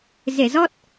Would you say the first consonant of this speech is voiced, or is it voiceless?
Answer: voiced